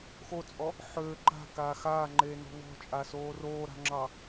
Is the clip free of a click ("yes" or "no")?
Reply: no